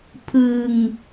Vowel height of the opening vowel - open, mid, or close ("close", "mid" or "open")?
close